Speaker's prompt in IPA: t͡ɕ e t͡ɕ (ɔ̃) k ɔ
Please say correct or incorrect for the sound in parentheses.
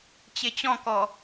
correct